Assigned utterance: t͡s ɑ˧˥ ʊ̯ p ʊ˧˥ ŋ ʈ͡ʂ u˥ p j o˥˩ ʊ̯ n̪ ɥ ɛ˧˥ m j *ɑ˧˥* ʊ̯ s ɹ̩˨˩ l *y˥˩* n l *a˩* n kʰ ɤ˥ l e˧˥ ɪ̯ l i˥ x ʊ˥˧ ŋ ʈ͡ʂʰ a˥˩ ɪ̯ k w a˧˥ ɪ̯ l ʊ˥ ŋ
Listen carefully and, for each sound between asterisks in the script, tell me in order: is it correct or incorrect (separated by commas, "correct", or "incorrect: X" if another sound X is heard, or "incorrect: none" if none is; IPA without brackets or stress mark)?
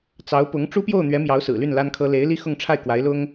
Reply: correct, correct, incorrect: a˥